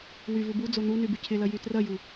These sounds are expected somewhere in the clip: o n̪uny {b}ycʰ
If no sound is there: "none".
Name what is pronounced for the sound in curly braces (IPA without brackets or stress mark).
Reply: b